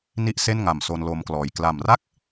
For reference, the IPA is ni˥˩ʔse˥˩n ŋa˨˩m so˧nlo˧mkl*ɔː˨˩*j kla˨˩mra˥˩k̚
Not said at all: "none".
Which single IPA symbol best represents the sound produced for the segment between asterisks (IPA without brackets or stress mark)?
ɔː˨˩